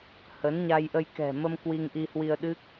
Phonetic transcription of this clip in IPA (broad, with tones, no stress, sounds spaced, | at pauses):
h ə˨˦ n ɲ a˧ j ʔ ə˧ j k ɛ̤˨˩ m ə˧ m k w i˧ ŋ ʔ i˧ h w i˧ ə̯ ɗ ɨ˦˥ k̚